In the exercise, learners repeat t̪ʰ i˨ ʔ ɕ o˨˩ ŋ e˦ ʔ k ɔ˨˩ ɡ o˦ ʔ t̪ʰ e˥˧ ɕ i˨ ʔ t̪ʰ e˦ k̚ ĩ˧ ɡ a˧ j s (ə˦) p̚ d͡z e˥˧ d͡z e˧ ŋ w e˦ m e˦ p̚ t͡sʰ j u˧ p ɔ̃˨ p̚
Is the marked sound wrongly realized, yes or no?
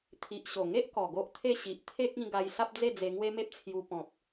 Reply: yes